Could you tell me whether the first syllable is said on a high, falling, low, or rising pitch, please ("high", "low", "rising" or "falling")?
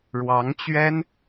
rising